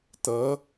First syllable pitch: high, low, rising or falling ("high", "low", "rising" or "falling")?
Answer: rising